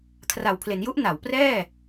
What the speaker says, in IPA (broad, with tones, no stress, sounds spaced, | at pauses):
kʰ r a˨˩ w pʰ l e˩˦ n j u˦˥ ʔ n a˩˦ w p r ɛː˥˩